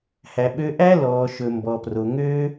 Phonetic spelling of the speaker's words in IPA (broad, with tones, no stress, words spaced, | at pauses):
hæ˨ɓø˧ʔæ˦ lɔː˨ʃɵ˨mbɔ˨pro˨ ŋø˦